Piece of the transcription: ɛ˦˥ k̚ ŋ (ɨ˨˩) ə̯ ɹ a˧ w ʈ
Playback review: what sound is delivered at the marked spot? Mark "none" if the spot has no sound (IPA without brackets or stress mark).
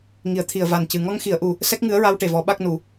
ɨ˧˥